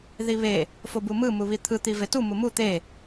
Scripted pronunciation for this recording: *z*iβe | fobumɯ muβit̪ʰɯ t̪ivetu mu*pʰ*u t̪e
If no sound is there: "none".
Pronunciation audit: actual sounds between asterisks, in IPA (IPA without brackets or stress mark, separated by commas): ð, m